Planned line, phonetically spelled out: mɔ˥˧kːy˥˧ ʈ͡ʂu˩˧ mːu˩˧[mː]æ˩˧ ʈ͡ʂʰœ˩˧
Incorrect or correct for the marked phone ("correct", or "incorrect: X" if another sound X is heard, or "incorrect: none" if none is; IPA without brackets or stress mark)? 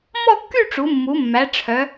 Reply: correct